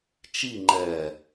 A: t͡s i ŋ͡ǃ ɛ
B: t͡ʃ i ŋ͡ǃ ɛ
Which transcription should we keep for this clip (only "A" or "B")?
B